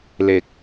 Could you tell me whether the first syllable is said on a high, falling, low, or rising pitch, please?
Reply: low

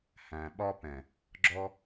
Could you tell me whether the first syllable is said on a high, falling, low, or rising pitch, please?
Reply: low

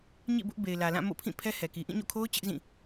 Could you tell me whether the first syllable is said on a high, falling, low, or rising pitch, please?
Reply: falling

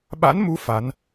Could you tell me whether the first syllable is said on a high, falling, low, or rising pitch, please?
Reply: rising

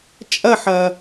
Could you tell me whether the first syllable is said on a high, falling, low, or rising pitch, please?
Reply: falling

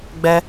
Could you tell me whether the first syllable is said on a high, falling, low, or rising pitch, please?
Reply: high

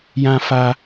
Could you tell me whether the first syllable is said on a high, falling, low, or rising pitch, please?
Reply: high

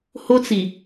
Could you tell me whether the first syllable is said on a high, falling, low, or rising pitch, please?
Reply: high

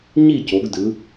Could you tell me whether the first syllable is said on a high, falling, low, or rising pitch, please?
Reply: falling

